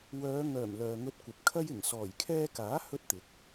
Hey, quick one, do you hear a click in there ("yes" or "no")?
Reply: no